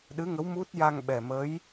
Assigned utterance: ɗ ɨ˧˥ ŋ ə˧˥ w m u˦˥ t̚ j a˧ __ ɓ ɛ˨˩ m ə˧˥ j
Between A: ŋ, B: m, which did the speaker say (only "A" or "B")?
A